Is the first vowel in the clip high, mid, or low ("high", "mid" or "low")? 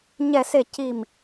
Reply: mid